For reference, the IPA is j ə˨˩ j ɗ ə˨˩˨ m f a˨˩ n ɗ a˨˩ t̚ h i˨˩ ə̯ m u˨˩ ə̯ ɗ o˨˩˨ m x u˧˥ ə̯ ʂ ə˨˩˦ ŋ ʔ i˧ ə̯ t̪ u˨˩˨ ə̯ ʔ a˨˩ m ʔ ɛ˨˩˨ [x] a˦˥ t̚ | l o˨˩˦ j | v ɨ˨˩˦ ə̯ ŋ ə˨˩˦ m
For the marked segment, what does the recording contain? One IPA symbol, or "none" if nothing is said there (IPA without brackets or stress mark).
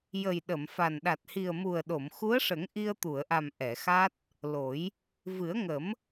x